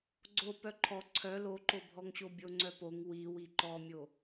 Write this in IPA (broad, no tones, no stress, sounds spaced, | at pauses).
ɡ͡ǀ o p œ ǃʰ ɔ ǀʰ œ l o ǃ o bʱ ɔ ŋ ɕ o bʲ o ŋ͡ǀ œ p o ŋ w i w i ǃ ɔ mʲ o